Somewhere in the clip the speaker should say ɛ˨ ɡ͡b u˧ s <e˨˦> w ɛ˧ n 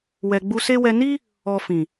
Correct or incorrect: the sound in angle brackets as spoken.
incorrect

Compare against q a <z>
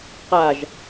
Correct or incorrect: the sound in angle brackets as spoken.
incorrect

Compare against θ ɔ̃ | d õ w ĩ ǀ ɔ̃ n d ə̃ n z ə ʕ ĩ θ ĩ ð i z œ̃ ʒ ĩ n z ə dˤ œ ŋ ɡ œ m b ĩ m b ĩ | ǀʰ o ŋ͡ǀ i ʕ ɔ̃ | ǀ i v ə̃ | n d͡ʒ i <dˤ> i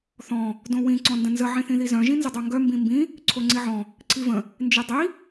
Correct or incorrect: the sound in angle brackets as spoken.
correct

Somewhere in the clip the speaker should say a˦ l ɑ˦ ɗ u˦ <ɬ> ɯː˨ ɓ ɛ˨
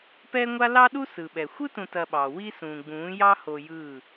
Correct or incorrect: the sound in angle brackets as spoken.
incorrect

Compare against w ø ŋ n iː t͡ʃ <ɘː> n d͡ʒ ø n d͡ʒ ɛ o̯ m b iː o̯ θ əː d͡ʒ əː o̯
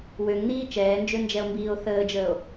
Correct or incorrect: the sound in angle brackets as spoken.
incorrect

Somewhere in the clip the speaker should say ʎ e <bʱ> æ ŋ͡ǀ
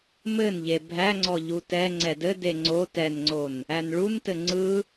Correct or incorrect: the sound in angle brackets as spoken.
correct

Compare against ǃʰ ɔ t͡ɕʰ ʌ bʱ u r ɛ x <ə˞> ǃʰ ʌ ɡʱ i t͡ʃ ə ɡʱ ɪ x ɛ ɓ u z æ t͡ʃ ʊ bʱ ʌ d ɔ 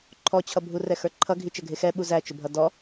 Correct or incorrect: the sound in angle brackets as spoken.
correct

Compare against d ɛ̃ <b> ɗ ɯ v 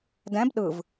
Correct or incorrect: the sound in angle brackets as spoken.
correct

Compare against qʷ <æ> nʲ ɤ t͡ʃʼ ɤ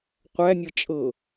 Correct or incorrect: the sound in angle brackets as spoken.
correct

